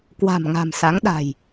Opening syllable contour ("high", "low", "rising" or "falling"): low